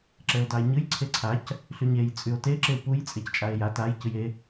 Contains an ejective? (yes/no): yes